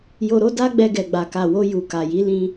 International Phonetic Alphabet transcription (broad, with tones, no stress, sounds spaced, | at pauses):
j o˧ ɾ o˦ d a˦ ɡ͡b ɛ˧ ɡ ɛ˨ ɡ͡b a˨ k a˨ w o˧ j u˨ k a˨ j i˨˦ l ĩ˧